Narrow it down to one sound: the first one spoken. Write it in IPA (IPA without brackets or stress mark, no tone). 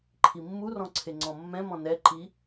ǃʰ